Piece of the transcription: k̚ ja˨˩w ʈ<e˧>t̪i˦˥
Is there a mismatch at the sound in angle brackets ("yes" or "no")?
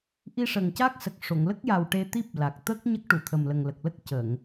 no